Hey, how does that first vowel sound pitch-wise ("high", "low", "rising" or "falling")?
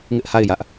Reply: high